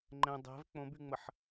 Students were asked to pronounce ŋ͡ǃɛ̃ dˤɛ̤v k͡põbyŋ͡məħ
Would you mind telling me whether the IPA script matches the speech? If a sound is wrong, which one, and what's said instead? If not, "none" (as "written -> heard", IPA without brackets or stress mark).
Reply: none